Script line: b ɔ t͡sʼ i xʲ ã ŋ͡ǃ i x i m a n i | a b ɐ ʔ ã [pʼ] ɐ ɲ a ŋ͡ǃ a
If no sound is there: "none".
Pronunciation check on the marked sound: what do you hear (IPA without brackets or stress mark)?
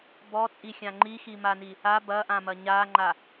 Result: m